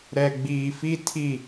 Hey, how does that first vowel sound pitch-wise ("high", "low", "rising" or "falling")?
low